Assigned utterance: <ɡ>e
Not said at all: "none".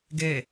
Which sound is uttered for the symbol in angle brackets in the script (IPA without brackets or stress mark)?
ɡ